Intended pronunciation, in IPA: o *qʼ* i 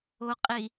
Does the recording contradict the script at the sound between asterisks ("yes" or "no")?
no